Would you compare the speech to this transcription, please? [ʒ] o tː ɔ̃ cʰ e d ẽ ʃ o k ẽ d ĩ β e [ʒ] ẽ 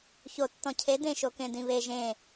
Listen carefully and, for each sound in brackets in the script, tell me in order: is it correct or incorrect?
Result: incorrect, correct

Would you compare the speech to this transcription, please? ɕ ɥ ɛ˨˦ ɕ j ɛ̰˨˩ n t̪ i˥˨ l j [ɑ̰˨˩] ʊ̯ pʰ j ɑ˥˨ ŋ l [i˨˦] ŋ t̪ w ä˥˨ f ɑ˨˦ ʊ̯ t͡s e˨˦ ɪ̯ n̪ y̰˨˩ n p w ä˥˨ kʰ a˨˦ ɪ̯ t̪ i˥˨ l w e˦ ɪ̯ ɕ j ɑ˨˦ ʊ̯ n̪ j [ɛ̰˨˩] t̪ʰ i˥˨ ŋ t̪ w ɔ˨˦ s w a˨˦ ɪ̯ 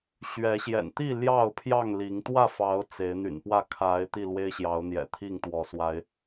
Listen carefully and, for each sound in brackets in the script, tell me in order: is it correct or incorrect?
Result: incorrect, correct, correct

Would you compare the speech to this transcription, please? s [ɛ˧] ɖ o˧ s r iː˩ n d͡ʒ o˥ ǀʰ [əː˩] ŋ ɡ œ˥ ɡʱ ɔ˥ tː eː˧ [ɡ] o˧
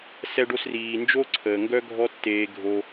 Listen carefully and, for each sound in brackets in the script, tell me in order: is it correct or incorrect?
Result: correct, correct, incorrect

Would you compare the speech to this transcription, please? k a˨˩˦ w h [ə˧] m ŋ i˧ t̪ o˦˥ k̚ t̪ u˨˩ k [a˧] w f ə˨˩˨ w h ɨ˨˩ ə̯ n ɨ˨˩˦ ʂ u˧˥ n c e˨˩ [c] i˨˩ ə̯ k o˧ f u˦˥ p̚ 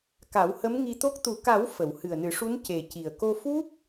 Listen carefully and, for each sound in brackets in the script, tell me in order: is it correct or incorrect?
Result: incorrect, incorrect, correct

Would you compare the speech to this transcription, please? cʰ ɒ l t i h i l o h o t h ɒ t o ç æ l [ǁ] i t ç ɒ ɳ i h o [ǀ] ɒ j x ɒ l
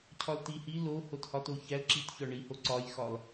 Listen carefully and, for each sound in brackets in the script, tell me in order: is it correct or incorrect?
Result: correct, correct

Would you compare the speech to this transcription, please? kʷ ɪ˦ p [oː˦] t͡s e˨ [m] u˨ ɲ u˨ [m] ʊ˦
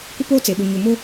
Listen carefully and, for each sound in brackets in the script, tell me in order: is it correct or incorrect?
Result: correct, incorrect, correct

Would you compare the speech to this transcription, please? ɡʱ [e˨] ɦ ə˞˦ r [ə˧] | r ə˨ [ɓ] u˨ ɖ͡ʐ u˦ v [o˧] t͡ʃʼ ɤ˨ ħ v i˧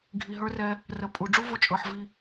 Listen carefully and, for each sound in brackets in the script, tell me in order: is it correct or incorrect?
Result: incorrect, incorrect, incorrect, correct

